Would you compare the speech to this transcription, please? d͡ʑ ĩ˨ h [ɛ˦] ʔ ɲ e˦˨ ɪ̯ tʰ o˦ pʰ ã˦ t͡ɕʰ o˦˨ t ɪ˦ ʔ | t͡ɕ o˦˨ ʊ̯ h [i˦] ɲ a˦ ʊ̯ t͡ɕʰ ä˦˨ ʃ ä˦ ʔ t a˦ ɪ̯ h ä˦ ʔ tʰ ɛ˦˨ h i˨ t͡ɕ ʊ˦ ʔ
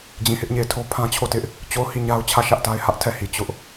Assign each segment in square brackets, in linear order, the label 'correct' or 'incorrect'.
incorrect: ɪ˦, incorrect: i˦˨

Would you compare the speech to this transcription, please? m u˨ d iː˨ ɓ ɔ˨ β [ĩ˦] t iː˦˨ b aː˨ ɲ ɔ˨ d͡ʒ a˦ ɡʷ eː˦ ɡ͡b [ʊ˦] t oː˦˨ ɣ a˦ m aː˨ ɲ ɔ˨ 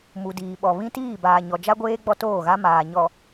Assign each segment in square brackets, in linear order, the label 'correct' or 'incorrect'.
correct, incorrect: ɔ˦

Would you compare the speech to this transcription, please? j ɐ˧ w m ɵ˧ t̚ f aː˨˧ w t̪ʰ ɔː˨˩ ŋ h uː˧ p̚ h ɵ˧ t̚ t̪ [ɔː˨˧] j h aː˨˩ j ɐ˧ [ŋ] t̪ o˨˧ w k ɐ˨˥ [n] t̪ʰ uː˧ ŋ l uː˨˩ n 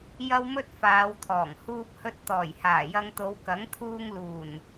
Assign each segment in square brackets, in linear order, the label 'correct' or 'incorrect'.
incorrect: ɔː˨˩, correct, incorrect: ŋ

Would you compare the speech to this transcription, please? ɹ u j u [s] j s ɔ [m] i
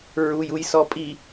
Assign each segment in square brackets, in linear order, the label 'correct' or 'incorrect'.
incorrect: none, incorrect: pʼ

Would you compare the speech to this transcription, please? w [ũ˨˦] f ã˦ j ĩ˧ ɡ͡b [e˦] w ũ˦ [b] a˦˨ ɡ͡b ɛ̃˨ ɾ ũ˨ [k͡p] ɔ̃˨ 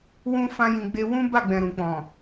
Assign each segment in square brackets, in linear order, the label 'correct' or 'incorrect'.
incorrect: ũ˦, correct, correct, correct

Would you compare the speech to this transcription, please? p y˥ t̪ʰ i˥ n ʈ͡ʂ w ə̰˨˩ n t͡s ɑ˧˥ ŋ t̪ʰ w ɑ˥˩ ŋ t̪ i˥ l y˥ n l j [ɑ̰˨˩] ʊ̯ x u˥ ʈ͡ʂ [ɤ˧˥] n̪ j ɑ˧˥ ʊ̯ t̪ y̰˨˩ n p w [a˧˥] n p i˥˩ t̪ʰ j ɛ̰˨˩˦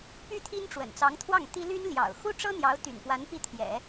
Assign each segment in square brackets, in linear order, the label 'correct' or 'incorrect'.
correct, incorrect: ɤ˥, correct

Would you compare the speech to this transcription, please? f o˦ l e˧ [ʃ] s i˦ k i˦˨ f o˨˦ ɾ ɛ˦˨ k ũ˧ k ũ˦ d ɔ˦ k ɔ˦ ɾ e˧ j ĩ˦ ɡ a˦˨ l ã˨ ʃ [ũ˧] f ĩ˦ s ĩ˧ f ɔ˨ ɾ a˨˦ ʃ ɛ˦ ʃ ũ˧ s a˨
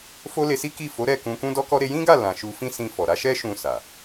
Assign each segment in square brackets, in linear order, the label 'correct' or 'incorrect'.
incorrect: none, incorrect: u˧

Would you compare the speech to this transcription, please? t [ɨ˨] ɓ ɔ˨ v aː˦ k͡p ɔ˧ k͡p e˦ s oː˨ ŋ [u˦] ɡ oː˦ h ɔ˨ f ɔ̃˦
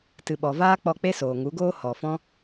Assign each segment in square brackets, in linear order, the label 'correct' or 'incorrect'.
correct, incorrect: u˨˦

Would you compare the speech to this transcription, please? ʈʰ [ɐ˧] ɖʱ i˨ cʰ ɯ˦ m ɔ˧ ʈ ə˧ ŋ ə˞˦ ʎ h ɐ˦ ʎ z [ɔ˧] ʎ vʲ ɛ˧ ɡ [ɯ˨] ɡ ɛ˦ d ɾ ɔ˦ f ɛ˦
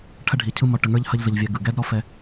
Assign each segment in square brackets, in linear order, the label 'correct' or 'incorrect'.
correct, incorrect: ə˧, correct

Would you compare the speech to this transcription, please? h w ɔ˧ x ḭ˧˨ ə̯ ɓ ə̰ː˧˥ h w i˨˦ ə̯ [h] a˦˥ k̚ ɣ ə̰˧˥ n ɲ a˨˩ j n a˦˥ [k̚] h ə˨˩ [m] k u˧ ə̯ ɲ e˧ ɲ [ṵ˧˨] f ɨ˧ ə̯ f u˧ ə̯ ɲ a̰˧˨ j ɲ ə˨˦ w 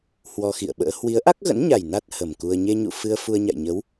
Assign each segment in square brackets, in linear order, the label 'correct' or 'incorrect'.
incorrect: ʔ, incorrect: t̚, correct, correct

